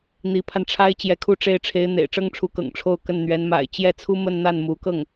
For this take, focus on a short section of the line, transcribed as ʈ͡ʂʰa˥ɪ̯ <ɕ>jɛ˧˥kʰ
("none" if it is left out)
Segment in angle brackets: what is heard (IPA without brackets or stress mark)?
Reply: t͡ɕ